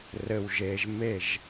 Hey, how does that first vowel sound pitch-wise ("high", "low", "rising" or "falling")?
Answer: low